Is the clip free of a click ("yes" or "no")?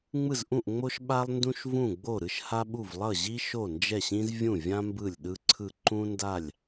no